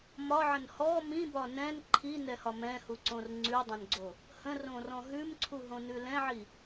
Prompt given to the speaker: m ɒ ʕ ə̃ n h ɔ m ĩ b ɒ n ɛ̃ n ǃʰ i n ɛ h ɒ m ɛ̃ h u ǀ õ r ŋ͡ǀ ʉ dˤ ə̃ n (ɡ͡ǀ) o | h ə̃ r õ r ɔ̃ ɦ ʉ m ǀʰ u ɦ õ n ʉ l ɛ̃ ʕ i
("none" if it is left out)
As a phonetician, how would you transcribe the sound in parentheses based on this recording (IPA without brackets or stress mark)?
ɡ͡ǀ